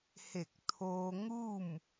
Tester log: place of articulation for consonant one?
glottal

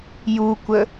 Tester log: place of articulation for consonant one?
palatal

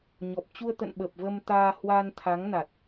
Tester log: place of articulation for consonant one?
palatal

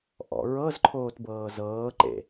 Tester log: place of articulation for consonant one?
glottal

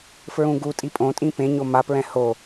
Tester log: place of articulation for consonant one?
labial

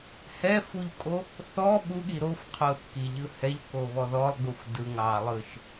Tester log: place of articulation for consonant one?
glottal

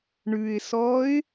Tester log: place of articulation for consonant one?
retroflex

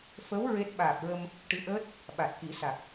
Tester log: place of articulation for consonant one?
labial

